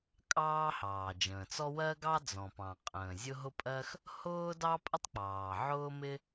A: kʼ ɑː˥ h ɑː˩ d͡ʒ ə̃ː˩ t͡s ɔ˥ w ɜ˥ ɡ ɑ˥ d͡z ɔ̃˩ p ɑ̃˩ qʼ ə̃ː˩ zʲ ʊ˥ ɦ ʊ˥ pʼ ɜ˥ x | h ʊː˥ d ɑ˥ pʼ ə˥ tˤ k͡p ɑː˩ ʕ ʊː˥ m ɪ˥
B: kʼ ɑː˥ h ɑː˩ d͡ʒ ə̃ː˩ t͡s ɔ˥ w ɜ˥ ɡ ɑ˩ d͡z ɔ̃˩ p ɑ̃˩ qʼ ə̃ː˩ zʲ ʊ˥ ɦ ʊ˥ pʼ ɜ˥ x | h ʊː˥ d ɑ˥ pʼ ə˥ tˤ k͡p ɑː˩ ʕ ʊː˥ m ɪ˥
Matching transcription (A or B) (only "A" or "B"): A